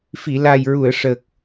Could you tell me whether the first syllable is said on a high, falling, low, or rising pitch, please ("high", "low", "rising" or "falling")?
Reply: low